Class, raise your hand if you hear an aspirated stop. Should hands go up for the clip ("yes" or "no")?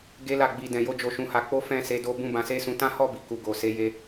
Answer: no